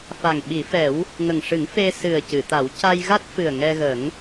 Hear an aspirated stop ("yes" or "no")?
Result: no